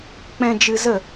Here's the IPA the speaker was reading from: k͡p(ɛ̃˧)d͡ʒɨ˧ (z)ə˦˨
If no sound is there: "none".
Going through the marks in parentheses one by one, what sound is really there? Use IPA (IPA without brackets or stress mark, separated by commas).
ɛ̃˧, z